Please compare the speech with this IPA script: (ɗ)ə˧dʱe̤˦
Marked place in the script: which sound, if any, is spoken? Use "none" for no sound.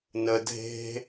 n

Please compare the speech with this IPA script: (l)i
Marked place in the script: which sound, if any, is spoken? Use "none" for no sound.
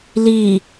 l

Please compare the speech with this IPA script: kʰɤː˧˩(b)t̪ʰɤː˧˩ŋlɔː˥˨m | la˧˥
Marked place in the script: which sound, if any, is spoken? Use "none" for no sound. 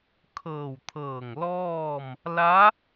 w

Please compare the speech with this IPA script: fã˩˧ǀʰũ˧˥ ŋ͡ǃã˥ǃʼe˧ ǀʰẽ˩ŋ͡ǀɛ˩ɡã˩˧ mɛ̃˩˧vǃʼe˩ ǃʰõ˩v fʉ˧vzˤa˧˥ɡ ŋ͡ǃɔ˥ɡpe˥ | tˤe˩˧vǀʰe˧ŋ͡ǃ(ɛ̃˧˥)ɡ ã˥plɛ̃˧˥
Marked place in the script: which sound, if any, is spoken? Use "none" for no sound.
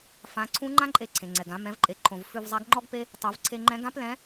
ɛ̃˧˥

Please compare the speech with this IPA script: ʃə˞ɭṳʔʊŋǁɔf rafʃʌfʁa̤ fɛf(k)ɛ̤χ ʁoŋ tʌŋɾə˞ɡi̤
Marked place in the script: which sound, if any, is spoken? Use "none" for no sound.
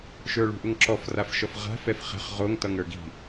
χ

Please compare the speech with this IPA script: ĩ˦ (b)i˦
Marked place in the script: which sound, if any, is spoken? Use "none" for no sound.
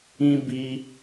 b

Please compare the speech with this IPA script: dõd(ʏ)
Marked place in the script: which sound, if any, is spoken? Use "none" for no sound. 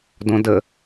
ə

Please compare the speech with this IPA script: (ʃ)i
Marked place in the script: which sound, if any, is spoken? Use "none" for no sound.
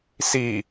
s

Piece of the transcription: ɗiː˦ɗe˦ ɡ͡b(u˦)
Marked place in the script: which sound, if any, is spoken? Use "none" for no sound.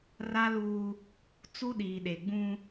ũ˦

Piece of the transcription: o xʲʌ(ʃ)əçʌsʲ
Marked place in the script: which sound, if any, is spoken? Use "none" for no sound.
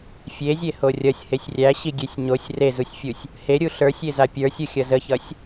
z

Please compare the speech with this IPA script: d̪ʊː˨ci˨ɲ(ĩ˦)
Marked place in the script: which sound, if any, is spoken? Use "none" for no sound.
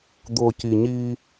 i˦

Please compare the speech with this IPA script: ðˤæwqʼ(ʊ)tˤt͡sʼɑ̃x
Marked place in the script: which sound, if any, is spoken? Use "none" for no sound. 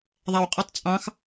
u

